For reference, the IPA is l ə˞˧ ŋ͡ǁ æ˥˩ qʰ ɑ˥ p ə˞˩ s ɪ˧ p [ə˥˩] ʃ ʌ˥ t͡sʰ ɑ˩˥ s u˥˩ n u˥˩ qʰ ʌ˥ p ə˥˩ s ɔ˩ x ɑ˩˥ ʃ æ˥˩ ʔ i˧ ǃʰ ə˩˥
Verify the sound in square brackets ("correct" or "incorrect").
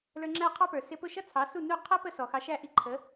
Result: incorrect